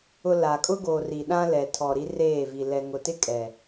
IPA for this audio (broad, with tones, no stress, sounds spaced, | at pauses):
ʊ˨ l a˨ kʼ ʊ˦ ɡ oː˨ r i˨ ɗ ã˦ l ɛ˨ tʰ ɔ˨ ɾ i˦ r eː˦˨ v i˨ l ɛ˨ ŋ ʊ˨ t ɪ˦ kʼ ɛ˨